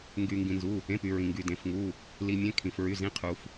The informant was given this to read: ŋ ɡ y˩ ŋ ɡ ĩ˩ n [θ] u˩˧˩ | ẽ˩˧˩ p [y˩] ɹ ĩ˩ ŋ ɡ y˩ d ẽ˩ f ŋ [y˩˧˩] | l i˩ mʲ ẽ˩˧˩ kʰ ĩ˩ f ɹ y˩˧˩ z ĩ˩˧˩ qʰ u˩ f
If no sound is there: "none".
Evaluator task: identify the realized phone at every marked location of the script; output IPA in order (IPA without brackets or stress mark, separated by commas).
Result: z, y˩, u˩˧˩